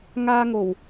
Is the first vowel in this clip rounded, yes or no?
no